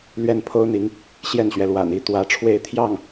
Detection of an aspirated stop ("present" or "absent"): present